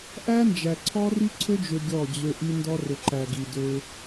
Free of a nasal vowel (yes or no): yes